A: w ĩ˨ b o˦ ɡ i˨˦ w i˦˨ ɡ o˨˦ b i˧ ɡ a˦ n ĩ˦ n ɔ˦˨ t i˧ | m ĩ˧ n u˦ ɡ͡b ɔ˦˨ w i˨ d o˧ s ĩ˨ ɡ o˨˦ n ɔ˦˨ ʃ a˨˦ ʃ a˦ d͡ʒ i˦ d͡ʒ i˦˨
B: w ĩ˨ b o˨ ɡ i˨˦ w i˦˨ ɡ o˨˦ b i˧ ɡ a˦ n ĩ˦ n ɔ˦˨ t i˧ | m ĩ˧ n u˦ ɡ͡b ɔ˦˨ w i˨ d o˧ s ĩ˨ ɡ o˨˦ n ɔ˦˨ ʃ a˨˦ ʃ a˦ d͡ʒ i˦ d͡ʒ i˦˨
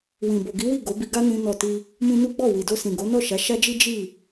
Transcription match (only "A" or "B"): B